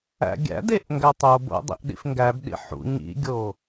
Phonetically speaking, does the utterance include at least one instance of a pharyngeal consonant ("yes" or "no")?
yes